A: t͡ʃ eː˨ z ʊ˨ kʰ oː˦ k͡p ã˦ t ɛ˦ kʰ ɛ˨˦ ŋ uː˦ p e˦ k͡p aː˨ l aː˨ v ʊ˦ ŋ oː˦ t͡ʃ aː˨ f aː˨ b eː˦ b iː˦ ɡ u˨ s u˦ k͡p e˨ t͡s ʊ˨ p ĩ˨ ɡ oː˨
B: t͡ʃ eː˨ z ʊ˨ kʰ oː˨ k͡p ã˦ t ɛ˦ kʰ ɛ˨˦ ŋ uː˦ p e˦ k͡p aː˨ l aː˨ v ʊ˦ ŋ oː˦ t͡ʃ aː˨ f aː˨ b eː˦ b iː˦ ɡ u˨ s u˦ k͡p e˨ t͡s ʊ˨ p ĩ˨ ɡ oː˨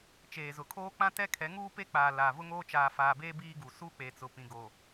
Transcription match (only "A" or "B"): A